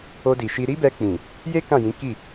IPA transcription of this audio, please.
o˧di˨ʃi˧ ɾi˦bɛ˧k͡pĩ˨ | je˦ kã˦˨jĩ˨˦ki˦˨

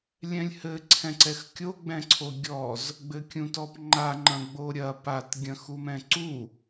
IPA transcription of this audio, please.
lʲɛ̃lʲhɘ ǀʰɛ̃ǀɛxkʲo ɡ͡bɛ̃ǀʰoɡʲɔz | ɡ͡bɘkʲũtɔpŋ͡ǃa ŋ͡ǃɐ̃ɡ͡boɾʲɐ pat ɡʲɐ̃xumɛ̃ǀu

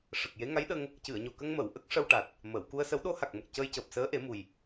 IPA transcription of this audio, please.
ʂə˨˩k̚je˧˥ ŋa˧˥jɗə˧ŋ | cɨ˨˩˨ə̯ɲo˨˩kə˧ŋmə˨˩˨w ʔə˦˥k̚ʂə˧wʈa˨˩t̚ | məː˨˩˨w ku˧ə̯sə˧˥w ɗo˧˥ha˨˩k̚mə˨˩k̚ cəː˧jcəː˨˩p̚ səː˧˥ʔe˨˩˦mu˨˩j

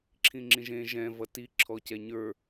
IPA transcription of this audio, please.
ǁʰĩŋ͡ǁĩʒẽ ʒɛ̃ vʌti ǁʰɔcɛɲə˞

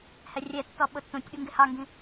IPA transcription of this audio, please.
hɛrʲɛtːɔ ɓʊtːũtʲɓu ŋɡɪhɑŋɡĩ

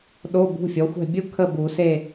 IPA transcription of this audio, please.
ɗo˧˥˧bṳ˧˥˧fʲɔ˩˥xʷɛ̤˥˨ bʲu˥kʰə˥˨bu˨˩˦ se˥˨

